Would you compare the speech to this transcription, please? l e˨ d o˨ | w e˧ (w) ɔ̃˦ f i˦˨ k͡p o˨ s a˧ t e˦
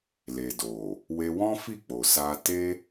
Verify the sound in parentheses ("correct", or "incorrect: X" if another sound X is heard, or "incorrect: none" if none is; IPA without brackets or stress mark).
correct